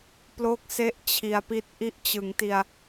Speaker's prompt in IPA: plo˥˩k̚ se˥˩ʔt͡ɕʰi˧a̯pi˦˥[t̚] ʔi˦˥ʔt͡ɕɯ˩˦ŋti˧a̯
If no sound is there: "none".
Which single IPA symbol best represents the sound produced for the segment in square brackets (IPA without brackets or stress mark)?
t̚